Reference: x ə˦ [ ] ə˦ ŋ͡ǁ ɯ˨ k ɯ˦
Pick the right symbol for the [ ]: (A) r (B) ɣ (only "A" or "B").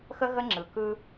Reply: B